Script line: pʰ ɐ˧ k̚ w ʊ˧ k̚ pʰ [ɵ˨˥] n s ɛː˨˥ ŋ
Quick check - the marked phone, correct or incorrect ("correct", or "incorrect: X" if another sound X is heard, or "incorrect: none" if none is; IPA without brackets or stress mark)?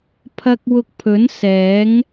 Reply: correct